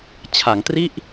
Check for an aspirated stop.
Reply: present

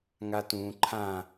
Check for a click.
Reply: present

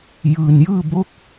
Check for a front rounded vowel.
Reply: absent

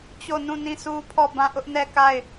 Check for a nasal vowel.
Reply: present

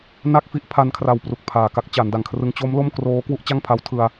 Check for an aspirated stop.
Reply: present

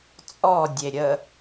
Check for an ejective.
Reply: present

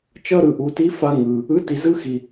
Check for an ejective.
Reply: absent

